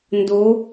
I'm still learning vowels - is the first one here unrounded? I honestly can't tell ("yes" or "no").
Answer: no